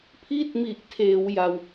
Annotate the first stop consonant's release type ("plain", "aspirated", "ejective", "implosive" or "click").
aspirated